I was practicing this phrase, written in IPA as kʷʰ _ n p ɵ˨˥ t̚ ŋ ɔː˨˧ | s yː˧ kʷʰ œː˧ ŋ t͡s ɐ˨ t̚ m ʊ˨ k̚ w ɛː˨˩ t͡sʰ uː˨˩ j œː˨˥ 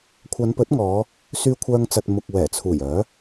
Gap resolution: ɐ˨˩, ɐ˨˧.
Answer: ɐ˨˧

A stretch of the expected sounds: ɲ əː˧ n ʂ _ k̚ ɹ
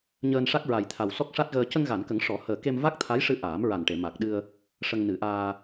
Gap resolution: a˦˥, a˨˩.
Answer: a˦˥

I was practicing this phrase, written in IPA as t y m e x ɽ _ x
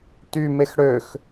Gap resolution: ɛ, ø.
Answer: ø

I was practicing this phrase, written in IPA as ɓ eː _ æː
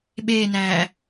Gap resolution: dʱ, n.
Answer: n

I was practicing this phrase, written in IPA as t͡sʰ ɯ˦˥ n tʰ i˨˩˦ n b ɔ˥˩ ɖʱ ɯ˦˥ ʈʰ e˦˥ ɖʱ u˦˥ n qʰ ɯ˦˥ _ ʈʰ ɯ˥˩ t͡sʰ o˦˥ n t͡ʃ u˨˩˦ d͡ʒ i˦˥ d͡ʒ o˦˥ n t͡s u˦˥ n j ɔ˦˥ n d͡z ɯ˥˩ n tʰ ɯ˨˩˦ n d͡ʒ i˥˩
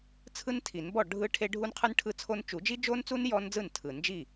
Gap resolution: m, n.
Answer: n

